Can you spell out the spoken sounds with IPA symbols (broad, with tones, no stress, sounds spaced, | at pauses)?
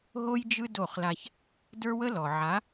ɦ o˦ j d͡ʒ ɯ˦ d o˦˨ χ l a˦ ç | d ə˞˦ w ə˦ l ɔ˨ ʕ a˨˦